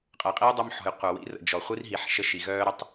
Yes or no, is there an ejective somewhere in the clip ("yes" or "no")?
yes